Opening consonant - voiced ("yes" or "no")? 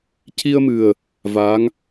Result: no